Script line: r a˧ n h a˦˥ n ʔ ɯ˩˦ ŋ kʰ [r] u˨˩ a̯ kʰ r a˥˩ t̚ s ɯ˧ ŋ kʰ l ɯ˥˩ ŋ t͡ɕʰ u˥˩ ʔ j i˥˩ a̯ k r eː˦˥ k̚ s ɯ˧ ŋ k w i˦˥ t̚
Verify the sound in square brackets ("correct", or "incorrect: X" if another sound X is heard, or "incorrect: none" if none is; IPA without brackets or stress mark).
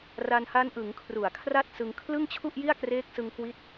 correct